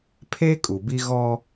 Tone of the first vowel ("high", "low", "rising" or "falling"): high